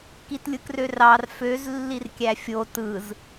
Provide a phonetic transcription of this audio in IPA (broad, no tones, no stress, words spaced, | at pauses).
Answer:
kitlʲɯkrørɑr føz lːirkʲæfʲo tɯz